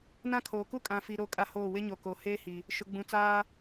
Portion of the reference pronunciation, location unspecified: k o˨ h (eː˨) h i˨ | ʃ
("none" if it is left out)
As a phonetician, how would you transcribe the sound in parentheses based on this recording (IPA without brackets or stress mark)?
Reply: eː˦